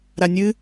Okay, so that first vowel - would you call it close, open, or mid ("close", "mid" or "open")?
open